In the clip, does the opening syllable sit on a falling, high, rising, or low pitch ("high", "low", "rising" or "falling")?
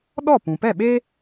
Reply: falling